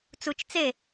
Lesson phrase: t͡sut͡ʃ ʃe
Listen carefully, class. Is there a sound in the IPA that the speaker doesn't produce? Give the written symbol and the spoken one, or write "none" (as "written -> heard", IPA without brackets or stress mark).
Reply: ʃ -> t͡s